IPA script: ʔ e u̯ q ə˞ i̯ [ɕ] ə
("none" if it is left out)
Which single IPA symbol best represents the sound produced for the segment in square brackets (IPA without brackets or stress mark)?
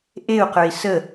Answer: s